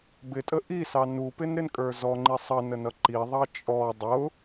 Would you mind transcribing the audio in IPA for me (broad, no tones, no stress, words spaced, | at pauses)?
bɪtʼə ʔisɑ nupɪnɾɪnkʼə˞ zɔŋ͡ǃi sˤʌnənʌ ǃiðˤɑ t͡ʃʼɔ dˤʊ